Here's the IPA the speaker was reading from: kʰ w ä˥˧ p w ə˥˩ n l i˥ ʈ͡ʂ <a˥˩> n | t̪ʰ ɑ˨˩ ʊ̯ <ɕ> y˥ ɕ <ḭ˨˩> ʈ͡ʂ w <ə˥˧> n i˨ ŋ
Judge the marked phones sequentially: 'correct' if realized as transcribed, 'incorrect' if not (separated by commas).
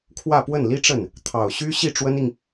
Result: incorrect, correct, incorrect, incorrect